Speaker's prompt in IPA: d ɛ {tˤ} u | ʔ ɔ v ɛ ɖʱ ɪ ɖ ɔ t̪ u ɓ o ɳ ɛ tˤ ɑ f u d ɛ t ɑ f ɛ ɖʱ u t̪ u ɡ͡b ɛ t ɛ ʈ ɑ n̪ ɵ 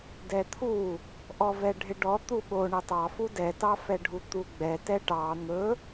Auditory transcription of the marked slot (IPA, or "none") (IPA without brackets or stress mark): t̪ʰ